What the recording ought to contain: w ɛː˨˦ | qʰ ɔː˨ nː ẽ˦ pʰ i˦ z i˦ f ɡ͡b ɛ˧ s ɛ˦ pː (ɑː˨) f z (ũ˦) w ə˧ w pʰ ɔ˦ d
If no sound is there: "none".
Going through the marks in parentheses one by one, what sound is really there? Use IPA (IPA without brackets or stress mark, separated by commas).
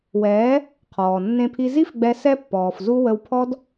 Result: ɔː˨, u˦